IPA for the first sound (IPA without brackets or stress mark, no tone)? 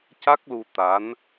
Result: c